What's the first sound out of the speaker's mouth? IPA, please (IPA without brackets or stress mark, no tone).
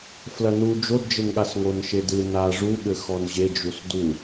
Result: f